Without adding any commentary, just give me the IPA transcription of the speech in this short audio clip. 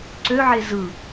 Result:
ǀ ø ʕ e z ɯ

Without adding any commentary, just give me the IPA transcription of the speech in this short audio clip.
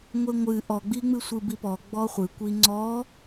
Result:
ŋʷ e ŋʷ ɨ ʔ ɔ ɡ͡b i ŋ͡m ɨ sʷ ɨ b i p ɔ ɡ͡b ɔ χʷ ɨ kʷ i ŋ͡ǀ ɔ

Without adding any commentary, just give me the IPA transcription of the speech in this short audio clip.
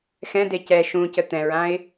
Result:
x ɛ̃ d e c ɛ ʃ ũ c ə t̪ ɛ̃ ɹ ã ɪ̯

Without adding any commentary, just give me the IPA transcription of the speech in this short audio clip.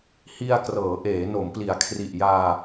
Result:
h i˧ a̯ k r ɤː˩˦ ʔ eː˩˦ n o˩˦ m p l i˩˦ a̯ kʰ r i˨˩ ʔ j aː˧

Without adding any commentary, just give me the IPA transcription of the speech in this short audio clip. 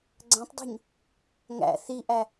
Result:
ɡ͡ǀ æ̃ tˤ dˤ ṳ ɲ | ŋ æ̰ θ i ʔ æ

